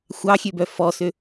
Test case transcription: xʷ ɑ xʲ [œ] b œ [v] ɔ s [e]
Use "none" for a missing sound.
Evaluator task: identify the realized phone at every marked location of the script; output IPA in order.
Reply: ø, f, ø

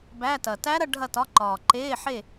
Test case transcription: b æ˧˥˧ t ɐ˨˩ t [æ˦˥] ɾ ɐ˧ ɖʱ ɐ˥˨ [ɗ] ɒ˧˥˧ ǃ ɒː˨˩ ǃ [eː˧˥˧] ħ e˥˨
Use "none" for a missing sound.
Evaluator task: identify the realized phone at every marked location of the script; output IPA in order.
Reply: æ˦˥, t, eː˧˥˧

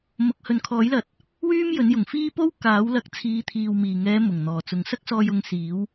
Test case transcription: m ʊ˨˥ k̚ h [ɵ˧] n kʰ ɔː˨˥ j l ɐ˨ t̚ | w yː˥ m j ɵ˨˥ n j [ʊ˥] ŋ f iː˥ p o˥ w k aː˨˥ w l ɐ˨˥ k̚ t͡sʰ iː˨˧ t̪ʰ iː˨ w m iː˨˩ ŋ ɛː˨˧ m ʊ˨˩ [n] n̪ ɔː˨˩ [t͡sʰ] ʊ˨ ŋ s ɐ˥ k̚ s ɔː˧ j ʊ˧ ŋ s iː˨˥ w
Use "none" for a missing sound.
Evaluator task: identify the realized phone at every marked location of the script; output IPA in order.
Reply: ɵ˨, ʊ˨˩, ŋ, t͡s

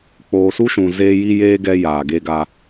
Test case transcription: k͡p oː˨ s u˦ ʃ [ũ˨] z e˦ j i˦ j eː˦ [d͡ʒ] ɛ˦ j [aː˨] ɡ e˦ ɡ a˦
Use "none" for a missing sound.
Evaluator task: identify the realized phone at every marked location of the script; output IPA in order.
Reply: ũ˨, ɡ, aː˨

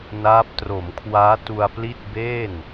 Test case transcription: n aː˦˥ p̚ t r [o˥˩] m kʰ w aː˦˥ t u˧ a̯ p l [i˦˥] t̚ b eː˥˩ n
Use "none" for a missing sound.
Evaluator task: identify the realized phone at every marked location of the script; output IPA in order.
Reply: o˩˦, i˥˩

